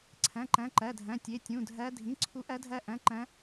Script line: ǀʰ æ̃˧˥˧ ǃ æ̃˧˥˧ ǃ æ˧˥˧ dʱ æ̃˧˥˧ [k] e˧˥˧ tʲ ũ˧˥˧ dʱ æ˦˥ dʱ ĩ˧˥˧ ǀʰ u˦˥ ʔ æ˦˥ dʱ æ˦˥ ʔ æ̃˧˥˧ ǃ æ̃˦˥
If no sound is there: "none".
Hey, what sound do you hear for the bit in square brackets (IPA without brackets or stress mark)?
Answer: tʲ